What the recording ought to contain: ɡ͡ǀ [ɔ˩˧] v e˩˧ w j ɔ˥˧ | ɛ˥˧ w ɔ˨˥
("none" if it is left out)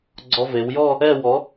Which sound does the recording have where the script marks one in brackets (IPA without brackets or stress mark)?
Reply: ɔ˧